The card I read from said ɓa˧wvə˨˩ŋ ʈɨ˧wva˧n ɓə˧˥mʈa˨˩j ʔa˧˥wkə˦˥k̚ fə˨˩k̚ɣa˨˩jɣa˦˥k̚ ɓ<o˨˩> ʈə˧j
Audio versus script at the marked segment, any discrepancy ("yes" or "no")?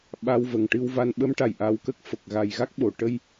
no